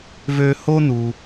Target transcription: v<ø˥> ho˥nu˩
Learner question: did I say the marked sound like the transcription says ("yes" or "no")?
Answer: yes